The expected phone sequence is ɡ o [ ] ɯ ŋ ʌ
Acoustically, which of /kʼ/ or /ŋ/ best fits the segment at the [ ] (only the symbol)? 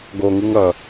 ŋ